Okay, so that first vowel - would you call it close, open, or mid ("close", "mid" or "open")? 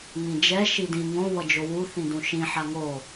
close